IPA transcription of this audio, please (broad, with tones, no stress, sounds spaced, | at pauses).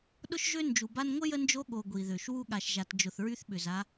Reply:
ɗ ʊ˥ ʃ ʒ ø˥ n d͡ʒ u˨ b a˦ n ŋʷ ə˥ j ə˦ n d͡ʒ o˦ ɠ o˨ ɡʷ i˩ ð ø˩ ʃ w u˥ ɠ a˨ ʃ ʒ a˨ t d͡ʒ ʊ˨ θ ɹ y˥ θ ɓ ʏ˩ z a˦